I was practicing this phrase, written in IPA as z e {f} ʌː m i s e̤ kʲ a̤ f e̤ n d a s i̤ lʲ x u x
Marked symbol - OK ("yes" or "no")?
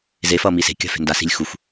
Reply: yes